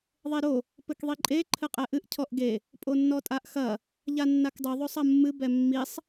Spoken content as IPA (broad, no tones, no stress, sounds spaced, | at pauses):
ðˤ e ɾ o | p ɘ k ðˤ i ǃʼ e ǃʰ ɘ qʼ ɛ ʔ ɨ ʔ cʰ ɔ ʔ ɡ e | pʼ o nː ɔ tʼ a ʔ x ɐ | ʎ a nː a k dˤ ɨ ðˤ o sˤ ɐ mː ɨ b ɛ mː i sˤ